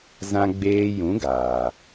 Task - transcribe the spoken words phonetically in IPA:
z ã˧ ɡ͡b eː˧ j ũ˨˦ ɡ aː˨

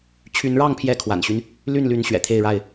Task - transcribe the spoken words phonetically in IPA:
t͡ɕʰ y˨˦ n ɻ ɑ˥˨ ŋ pʰ j ɛ˨˦ kʰ w a̰˨˩ n ɕ y˦ n | l y˥˨ n l y˨˦ n ɕ ɥ ɛ̰˨˩ t̪ʰ e˥˨ ɪ̯ ɻ a˥˨ ɪ̯

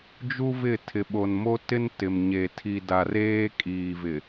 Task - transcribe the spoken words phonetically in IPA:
d͡ʒ u˦ v ɪ˦˨ tʰ ɪ˨ ɓ o˨ n m o˦ t ɪ˦ n t ɪ˨ m ɲ e˨ tʰ i˨ d a˨ r eː˦ kʼ iː˨ v ɪ˨

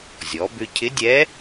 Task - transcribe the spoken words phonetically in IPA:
zʲ ɔ˩˧ b ʏ˧ cʰ ɪ˧˥ dʲ ɛ˧˥

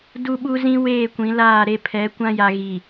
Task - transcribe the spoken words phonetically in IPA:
d u˦ ɓ u˦ z ĩ˦ w eː˦˨ kʷ ĩ˨˦ l aː˦˨ ɾ e˦ pʰ ɛ˨˦ kʷ ã˦ j a˨ ɣ i˨

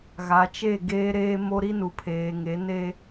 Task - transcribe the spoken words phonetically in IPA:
ɣ a˨ t͡ʃ e˦˨ ɡ eː˦ ɾ eː˦ m o˦ ɾ i˦ n u˨ pʰ eː˨ ŋ e˨˦ n e˦

